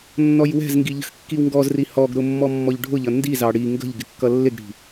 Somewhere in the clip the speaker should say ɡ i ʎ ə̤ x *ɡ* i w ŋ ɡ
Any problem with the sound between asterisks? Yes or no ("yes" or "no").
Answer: yes